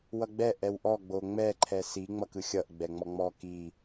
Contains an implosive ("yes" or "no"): no